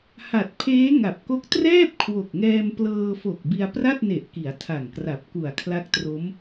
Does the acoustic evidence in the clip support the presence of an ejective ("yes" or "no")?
no